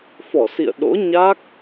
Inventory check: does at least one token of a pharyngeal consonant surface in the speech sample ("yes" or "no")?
no